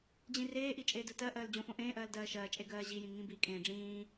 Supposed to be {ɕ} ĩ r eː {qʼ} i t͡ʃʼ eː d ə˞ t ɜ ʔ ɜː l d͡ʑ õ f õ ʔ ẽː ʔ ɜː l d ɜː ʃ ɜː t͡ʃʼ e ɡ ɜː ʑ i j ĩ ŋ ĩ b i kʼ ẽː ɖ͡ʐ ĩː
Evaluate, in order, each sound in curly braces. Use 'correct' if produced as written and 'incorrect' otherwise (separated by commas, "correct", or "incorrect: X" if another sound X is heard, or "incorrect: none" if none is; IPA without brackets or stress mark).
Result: incorrect: d͡ʑ, incorrect: ʔ